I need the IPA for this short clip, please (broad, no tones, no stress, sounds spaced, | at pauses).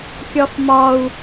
kʲ ɒ f m ɒ u̯